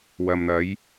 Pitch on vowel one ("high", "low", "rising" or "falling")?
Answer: low